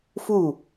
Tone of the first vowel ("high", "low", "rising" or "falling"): falling